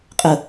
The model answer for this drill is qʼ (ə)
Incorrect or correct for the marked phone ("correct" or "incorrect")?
correct